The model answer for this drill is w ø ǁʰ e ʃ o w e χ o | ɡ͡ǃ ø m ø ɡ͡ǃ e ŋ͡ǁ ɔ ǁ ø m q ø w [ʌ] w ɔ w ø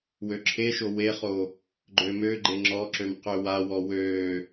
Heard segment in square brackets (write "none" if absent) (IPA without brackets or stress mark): a